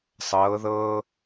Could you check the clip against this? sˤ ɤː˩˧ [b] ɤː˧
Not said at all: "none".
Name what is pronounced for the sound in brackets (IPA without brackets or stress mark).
ð